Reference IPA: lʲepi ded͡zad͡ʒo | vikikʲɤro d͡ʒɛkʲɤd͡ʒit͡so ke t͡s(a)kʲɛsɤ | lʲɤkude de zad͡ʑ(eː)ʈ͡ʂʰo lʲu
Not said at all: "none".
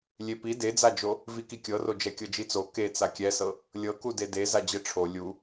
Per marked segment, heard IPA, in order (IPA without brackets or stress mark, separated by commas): a, e